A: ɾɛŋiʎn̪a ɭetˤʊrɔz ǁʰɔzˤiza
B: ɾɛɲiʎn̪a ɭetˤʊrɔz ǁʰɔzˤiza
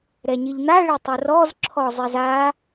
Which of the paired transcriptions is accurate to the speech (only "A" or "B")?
B